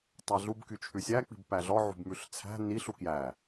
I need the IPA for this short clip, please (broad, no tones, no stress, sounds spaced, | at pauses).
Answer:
tˤ æ ɮ u b k y t͡ʃʰ ʉ sʲ æ k͡p i̤ b p æ ɮ ɔ ʕ ṳ b m ʉ ɬ t͡sʰ æ̤ n i ɬ u k j æ